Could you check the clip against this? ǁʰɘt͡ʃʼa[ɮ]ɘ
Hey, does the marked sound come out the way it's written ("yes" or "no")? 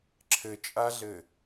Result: yes